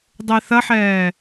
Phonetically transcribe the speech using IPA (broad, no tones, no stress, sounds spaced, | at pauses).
dˤ e θ ɐ ħ ɛː